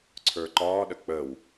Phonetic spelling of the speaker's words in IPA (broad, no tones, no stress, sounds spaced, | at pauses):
ǀʰ ə˞ ǃ ɒː ɗ ə k͡p ə w